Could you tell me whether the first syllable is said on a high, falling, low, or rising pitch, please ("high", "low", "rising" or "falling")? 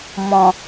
low